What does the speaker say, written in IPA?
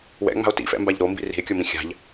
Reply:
w ɛ̰ ŋ͡m a̤ o̯ t ḭ f ɛ̰ m b a ʎ ɾ o m b ḭ r i̤ e̯ kʲ o m ĩ xʲ a̤ ʎ

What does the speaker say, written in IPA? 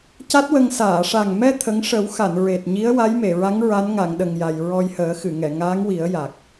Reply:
c a˦˥ t̚ w ə˧ ŋ s aː˨˩˨ ʂ a˨˩ ŋ m ɛ˧ t̪ʰ ə˧˥ ŋ ʂ ə˨˩˦ w x a˨˩˨ n ɹ e˨˩ t̚ ɲ i˧˥ ə̯ w a˧˥ j m e˨˩˨ ɹ a˧˥ ŋ ɹ a˧˥ n ŋ a˨˩˨ ŋ ɗ ə˨˩ ŋ j a˨˩ j ɹ ɔ˧ j h əː˨˩˦ x ɨ˨˩˨ ŋ ɛ˨˩˨ ŋ aː˧˥ ŋ w i˨˩˦ ə̯ j a˨˩ k̚

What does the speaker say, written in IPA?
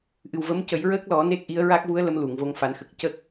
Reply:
ʔ ɨ˨˩ w v ə˧˥ m c ə˨˩˦ j ɹ əː˦˥ k̚ l ɔ˨˩˦ n e˦˥ k̚ ʔ i˧˥ ə̯ ɹ a˦˥ k̚ v u˧˥ ə̯ l ə˧˥ m l u˨˩˨ ŋ v o˧ ŋ f a˨˩˦ n x ə˨˩ k̚ c ə˦˥ k̚

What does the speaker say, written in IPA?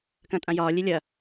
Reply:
k ɐ̃ tʼ ã j ɒː lʲ e lʲ ɐ

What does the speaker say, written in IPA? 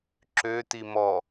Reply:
ǁ ø t i m ɔ

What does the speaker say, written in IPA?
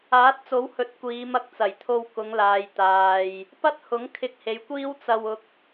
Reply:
aː˨˥ t̚ t͡s o˨˥ w h ɵ˨˥ t̚ kʷ iː˨˧ m ɐ˧ k̚ t͡s ɐ˨˩ j t̪ʰ o˧ w k ʊ˨˧ ŋ l aː˨ j t̪ aː˨ j | p ɐ˥ t̚ h ʊ˨˥ ŋ kʰ ɪ˧ k̚ h e˨˧ j kʷ iː˥ w t͡s ɐ˧ w ʊ˧ k̚

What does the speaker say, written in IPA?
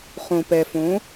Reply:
χ õ˧ p ɛ˧ f õ˧˥

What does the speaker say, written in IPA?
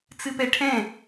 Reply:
t͡s ɨ p ɛ ʈʰ ɛ̃

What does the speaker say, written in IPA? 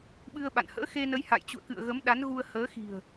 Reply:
ɓ ɨ˧ ə̯ ɓ a̰˧˨ n h ə̰ː˧˥ x e˧ n ə˨˦ j h a̰˧˨ j t͡ɕ ṵ˧˨ ə̯ k ɨ̰˧˨ ə̯ ɣ ə˨˦ m ɗ a˨˦ n ɣ u˧ ə̯ h əː˨˦ x i̤˨˩ ə̯

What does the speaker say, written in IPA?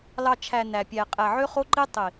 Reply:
l ɑ˨ t͡ʃʰ æ˨ n æ˨ pʲ æ˨ qʼ æ˨ ʕ ø˦ χ o˦ ǃ i˦ tˤ i˨

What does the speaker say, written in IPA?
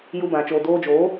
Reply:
j u˧ b ã˨ t͡ʃ oː˨ d oː˧ d͡ʒ oː˨˦

